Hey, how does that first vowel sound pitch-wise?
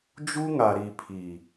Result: high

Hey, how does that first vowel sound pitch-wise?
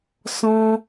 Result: high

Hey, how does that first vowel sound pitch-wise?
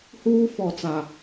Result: high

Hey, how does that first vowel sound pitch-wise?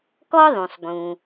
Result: high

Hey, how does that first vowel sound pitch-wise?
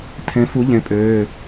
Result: rising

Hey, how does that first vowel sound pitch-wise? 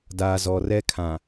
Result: low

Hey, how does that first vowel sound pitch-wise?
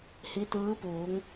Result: rising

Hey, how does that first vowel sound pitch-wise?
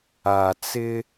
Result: low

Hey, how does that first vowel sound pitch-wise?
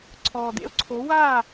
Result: low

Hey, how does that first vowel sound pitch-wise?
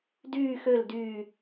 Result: low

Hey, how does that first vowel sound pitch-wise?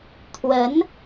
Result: rising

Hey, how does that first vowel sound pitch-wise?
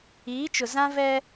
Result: rising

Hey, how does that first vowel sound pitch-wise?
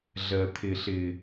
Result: low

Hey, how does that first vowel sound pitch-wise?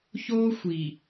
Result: high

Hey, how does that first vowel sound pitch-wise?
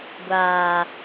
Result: low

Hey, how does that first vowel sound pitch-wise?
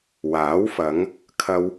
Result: rising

